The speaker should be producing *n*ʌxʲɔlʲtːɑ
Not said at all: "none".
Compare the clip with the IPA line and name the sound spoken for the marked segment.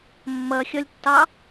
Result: mː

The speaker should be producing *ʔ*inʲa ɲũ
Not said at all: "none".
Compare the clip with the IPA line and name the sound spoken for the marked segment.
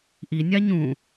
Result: ʔ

